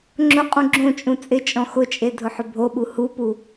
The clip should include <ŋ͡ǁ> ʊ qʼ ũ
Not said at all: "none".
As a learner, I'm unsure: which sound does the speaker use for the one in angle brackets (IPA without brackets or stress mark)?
ŋ͡ǁ